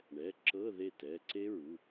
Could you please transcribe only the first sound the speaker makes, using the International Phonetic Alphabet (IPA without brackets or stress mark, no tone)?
ɳ